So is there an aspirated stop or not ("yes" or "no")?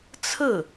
yes